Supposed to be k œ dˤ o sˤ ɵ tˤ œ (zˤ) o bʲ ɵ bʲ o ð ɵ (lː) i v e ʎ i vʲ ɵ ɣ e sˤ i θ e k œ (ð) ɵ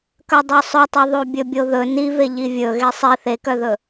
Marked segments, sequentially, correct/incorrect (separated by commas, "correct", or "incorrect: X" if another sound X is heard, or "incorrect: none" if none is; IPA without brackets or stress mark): incorrect: ðˤ, incorrect: n, correct